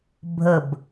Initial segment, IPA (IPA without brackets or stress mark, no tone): bʱ